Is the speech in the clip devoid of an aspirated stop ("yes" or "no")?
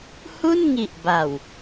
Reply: yes